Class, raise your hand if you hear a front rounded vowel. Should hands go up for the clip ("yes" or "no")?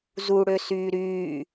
yes